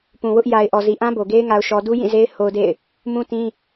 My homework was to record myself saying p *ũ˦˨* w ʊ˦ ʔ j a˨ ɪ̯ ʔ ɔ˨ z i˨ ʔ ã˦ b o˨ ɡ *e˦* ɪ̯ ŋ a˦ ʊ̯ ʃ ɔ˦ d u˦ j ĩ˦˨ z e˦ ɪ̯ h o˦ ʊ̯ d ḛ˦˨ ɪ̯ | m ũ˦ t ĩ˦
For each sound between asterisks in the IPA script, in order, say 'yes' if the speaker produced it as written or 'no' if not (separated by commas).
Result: no, yes